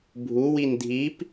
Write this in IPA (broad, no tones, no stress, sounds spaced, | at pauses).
bʱ u w i n dʱ i p